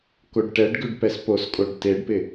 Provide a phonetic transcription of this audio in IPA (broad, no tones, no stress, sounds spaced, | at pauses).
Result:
k o ɖ ʈ ɛ ɖ ɡ ʉ ɖ p ɛ s p o s kʼ o ɖ t e ɖ p ɪ